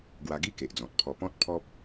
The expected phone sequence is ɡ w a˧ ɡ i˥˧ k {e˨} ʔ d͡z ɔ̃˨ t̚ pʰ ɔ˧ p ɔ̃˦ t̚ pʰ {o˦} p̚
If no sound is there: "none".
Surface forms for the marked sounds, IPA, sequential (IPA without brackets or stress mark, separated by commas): e˨, ɔ˦